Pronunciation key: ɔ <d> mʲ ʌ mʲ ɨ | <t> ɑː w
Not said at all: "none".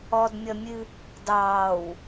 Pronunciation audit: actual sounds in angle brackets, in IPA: d, d

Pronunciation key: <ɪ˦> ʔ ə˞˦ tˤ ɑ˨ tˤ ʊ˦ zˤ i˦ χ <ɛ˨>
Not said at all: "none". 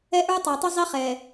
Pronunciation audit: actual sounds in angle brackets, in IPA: ɛ˦, ɛ˨

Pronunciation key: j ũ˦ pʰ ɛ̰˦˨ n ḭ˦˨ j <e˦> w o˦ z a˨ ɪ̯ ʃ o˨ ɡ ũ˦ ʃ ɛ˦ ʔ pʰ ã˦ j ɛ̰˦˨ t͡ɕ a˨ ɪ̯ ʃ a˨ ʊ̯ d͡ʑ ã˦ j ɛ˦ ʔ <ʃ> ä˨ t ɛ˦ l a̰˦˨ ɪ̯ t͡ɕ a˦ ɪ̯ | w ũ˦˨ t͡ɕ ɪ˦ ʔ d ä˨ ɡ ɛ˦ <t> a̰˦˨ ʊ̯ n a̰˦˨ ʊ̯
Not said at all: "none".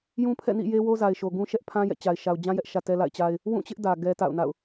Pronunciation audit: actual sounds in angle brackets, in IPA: e˦, ʃ, t

